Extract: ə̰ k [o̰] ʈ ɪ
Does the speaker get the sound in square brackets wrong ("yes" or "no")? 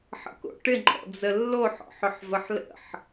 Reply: no